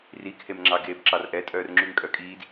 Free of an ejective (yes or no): no